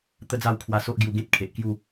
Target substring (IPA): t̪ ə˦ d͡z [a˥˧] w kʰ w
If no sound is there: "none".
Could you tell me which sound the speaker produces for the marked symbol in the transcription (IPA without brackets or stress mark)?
a˥˧